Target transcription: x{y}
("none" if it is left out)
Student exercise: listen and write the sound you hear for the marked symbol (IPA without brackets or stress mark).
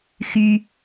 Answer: y